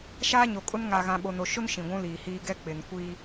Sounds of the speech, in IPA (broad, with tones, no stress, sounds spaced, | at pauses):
ʃ aː˦ ɲ o˨ kʼ ʊ˦ n ŋ aː˨ ɣ ã˨ ɓ o˨ n o˨ ʃ ʊ˦ n ʃ ĩ˨ ɡʷ ũ˦ l iː˨ h iː˦ ɡ ɛ˦ k͡p ɪ˨ n kʷ iː˦